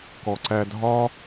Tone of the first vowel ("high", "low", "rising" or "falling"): low